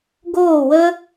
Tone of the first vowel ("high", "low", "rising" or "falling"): falling